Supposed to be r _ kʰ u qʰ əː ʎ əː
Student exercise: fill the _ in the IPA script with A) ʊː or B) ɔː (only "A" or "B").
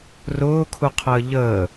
A